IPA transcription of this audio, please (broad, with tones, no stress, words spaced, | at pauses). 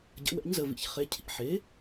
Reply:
ɟə̰˩˥wɛ̰˩˥ɲzə˩˧˩vḭ˩˥ç χe˩˥ cʰḭ˩˧˩ħe˩˥